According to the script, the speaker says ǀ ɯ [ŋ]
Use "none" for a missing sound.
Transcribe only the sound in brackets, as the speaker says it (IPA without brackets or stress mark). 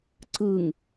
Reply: ŋ